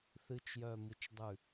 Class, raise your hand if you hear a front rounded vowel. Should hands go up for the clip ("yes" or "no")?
yes